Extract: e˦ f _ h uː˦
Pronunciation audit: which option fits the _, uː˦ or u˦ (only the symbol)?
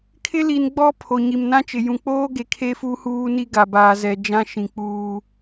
u˦